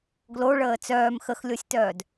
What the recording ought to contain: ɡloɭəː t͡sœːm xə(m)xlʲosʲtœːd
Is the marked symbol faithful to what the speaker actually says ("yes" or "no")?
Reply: no